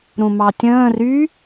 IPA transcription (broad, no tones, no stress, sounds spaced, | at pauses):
ɾ ũ m ɑ tʲ ə̃ː r y